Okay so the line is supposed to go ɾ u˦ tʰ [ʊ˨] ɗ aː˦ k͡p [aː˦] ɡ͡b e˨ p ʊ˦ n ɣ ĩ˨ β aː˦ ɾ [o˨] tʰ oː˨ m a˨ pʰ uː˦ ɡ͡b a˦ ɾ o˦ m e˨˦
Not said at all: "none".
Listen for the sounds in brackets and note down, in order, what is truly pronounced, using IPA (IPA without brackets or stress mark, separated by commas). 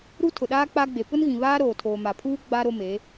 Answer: ʊ˨, a˦, oː˨